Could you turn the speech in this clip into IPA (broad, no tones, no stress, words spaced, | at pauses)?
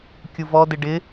kʲuvɔdɪ ɖɪ